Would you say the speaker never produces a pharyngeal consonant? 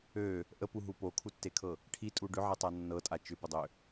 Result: no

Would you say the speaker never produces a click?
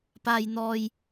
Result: yes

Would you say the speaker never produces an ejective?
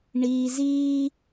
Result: yes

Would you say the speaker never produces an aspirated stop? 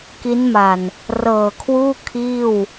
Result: no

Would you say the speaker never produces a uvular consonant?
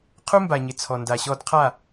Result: no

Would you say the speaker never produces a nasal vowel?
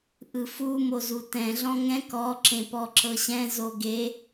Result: no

